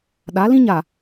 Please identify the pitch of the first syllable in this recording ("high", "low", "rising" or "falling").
rising